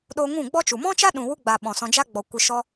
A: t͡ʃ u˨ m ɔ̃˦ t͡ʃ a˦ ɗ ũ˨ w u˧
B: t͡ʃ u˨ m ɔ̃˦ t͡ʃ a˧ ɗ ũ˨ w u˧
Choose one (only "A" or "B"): A